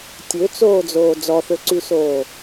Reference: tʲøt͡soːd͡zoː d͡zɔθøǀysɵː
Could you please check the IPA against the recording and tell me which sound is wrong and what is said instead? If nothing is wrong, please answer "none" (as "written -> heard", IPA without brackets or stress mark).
ɵː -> oː